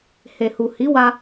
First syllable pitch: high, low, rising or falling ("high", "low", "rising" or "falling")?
low